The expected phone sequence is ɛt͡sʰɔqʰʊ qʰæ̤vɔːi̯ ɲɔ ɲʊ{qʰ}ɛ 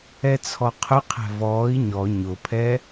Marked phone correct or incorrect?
incorrect